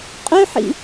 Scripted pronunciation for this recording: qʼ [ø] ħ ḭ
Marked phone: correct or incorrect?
correct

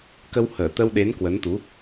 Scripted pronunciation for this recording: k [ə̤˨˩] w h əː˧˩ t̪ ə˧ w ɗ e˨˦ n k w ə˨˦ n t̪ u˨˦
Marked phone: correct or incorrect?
incorrect: ə˧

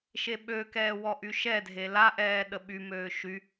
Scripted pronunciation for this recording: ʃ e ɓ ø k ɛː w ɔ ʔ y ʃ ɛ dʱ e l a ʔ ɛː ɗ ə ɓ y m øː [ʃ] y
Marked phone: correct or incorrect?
correct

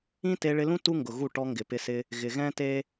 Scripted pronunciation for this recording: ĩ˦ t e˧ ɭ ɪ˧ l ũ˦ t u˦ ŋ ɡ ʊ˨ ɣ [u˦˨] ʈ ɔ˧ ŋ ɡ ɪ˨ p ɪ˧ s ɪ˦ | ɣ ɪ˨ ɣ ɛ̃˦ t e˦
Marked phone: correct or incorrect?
correct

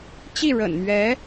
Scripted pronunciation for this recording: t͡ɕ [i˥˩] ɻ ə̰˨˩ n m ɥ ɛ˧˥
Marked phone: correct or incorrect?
correct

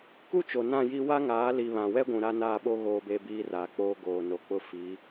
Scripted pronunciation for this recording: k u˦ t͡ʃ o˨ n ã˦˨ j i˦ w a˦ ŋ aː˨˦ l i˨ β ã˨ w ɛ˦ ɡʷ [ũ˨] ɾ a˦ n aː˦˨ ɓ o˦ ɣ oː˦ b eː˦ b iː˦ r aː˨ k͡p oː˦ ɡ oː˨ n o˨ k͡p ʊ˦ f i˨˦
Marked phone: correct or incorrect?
correct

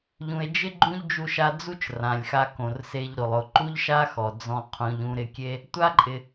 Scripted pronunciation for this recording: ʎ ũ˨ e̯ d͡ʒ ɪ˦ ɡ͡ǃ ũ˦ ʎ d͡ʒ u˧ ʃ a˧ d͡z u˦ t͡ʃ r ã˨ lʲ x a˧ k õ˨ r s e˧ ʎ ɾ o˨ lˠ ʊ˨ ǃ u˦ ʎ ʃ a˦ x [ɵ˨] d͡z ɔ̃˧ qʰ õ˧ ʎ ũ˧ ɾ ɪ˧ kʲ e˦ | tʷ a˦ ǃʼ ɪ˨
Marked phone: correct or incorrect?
incorrect: ɔ˨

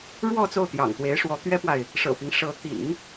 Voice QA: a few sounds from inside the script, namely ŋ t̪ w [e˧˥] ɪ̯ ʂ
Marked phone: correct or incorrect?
correct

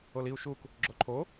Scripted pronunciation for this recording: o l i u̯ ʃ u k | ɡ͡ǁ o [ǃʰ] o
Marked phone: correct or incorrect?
correct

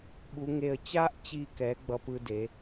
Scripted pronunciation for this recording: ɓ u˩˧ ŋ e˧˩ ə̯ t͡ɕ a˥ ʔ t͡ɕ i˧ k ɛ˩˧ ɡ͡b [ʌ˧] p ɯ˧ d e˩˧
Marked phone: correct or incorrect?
correct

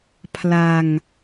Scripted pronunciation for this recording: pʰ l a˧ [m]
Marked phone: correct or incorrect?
incorrect: ŋ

